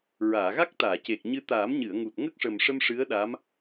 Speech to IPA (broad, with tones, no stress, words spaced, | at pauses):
ɹaː˨˩˨ɣa˦˥k̚t̪aː˨˩˨ce˨˩k̚ ɲɨ˧t̪aː˨˩˦m ɲɨ˨˩˨ə̯ŋu˨˩t̚ ŋə˦˥k̚ʂə˨˩mʂə˧m ʂɨ˧˥ə̯ɗa˧˥m